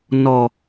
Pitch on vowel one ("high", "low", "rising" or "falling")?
low